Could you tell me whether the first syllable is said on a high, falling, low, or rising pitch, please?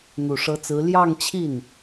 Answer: low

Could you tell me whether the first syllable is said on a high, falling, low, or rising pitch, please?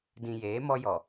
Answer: low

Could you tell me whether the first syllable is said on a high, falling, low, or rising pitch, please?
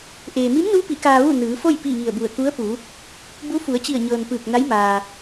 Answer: low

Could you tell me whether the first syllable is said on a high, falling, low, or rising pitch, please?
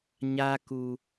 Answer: high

